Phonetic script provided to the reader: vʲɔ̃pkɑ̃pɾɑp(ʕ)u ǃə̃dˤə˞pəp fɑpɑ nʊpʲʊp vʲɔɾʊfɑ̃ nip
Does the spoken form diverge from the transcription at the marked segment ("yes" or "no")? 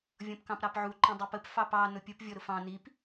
no